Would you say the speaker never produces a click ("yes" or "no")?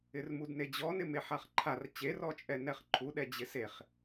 no